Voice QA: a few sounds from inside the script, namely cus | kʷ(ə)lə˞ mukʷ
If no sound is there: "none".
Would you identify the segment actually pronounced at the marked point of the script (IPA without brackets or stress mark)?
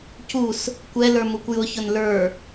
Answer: ɛ